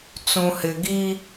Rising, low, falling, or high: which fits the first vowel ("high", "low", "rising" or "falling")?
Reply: low